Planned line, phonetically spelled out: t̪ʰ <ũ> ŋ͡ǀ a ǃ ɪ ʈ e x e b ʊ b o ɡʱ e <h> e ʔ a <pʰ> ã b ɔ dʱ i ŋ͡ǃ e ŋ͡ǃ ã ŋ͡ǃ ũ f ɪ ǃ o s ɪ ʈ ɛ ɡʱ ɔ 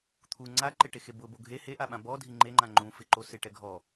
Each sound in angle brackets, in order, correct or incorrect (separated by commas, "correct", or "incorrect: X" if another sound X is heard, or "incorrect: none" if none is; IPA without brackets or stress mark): incorrect: u, correct, incorrect: ɓ